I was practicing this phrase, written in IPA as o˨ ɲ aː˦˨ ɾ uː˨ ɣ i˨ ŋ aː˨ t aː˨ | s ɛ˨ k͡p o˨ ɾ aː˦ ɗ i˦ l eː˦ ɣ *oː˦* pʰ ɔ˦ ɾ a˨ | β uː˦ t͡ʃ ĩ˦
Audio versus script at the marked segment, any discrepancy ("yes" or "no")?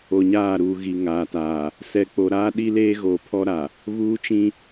yes